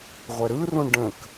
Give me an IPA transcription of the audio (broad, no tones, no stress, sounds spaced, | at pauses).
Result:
ʁʷ ɛ ɾ ɯ r ũ ɳ ɖ ə̃ k